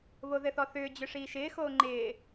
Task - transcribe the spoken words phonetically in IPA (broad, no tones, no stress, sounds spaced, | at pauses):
β o ð ɘ θ ɔ θ ʏː d͡ʑ ʏ ʂ iː ʃ ɪː x oː ŋ͡ǃ ɪː